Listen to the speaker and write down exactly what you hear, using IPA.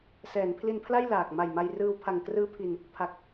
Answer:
s ɛː˩˦ n pʰ l i˧ n pʰ l a˥˩ j l aː˨˩ k̚ m a˨˩ j m a˧ j r ɯː˧ w pʰ a˨˩ ŋ k r ɯː˦˥ pʰ i˧ n | pʰ a˨˩ k̚

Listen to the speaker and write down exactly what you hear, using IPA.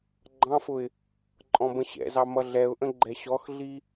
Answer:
ɡ͡ǃ ɑ̃ f ʊ ɪ̯ | ǃʼ ɔ̃ b ə̃ ɕ ɛ̰ z ɑ m ʌ ɮ ɛ ʊ̯ ʔ ə̃ ɡ͡ǃ ɛ ɕ ɔ x ɮ i

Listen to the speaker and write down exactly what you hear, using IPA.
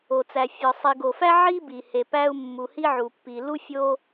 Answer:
o˨ t͡s æ˨ fʲ ɒ˨ sˤ i˨ ɡ o˨ f æ˦ ʕ i˦ b i˨ h e˨ p æ˦ u̯ mː u˨ h i˦ ʕ u˨ pː i˨ l u˦ fʲ o˦

